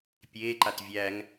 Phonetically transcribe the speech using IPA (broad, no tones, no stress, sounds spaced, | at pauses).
pʲ eː ǃ a t vʲ æ ŋ